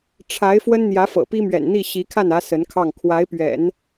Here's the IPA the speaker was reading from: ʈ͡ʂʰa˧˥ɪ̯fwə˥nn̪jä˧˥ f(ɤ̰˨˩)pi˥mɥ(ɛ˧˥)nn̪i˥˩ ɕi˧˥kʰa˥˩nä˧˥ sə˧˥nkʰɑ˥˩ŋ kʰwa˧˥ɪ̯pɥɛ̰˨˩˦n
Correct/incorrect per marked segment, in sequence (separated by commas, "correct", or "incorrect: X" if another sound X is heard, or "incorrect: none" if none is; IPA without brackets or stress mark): correct, incorrect: ɛ̰˨˩